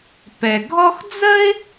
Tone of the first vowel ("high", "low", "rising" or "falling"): low